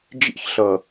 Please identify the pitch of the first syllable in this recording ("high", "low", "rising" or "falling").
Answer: high